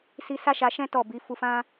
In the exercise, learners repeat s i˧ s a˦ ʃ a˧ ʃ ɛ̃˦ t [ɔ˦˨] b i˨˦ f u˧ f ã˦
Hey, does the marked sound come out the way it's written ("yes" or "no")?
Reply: yes